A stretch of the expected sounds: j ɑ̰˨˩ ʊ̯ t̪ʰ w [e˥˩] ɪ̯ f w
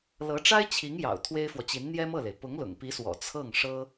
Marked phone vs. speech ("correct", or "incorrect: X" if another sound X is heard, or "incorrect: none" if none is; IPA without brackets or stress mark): incorrect: e˥